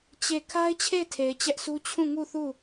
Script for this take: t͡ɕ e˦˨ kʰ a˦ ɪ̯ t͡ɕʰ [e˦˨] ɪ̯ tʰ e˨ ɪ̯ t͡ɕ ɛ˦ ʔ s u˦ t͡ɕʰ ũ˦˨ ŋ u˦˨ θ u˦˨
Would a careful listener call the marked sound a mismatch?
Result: no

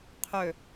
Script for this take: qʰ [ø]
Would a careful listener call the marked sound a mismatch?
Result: no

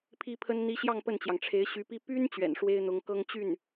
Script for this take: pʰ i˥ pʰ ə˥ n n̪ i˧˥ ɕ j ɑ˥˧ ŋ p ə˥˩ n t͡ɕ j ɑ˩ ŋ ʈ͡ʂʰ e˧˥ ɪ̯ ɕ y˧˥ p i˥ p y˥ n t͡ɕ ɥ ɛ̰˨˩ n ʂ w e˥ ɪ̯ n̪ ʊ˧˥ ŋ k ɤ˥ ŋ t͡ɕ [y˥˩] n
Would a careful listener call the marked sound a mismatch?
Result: no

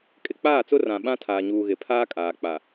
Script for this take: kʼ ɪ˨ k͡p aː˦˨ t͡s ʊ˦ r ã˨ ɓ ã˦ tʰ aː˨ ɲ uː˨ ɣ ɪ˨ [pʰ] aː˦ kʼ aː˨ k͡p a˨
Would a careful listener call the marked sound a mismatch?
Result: no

